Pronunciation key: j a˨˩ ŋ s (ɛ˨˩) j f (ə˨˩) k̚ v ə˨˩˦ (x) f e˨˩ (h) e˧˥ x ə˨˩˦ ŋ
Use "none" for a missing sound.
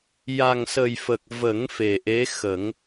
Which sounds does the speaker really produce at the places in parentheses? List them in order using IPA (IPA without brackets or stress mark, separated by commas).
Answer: ə˨˩, ə˨˩, ŋ, ʔ